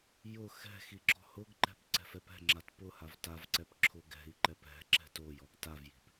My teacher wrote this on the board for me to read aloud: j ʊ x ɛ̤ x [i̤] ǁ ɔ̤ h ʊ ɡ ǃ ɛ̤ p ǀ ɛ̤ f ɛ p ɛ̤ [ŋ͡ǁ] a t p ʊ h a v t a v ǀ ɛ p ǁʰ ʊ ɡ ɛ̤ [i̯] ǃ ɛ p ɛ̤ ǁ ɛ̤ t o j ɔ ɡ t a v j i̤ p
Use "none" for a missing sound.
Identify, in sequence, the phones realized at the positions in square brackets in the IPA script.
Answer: i, ŋ͡ǁ, i̯

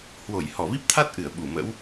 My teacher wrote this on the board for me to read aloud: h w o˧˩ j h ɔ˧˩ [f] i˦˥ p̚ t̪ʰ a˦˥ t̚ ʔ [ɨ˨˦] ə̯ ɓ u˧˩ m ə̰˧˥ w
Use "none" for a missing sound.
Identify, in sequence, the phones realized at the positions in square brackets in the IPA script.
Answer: v, ɨ˧˩

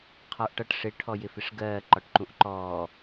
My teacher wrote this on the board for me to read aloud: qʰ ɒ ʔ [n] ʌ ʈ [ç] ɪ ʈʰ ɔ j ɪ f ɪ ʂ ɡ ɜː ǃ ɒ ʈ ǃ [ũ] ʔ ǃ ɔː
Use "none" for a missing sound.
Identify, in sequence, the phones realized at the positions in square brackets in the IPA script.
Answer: ʈ, ʂ, ũ

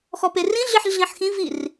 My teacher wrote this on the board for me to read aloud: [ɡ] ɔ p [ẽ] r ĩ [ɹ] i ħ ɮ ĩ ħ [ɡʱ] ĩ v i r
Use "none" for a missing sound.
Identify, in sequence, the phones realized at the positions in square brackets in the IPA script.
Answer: x, e, ɮ, x

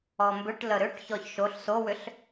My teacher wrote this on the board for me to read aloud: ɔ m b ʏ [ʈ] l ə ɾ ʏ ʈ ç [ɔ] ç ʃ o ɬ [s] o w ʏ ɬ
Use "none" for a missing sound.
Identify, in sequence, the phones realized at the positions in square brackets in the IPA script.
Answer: ʈ, ɔ, s

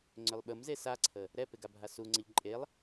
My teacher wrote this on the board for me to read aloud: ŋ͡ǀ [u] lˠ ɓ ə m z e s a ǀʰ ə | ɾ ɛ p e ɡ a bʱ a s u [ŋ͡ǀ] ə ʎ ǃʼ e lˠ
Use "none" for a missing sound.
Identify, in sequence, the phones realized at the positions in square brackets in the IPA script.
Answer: ʏ, ŋ͡ǀ

